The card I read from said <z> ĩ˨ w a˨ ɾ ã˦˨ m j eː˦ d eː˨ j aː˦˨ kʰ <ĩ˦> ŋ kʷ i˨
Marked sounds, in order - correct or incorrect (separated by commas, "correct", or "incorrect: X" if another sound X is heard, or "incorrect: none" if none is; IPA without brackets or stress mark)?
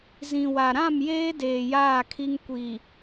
correct, incorrect: i˦